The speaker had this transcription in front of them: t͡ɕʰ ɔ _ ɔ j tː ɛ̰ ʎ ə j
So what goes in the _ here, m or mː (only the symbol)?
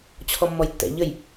mː